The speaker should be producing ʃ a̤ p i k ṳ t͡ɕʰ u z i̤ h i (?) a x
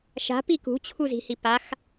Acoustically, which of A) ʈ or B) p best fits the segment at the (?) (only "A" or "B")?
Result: B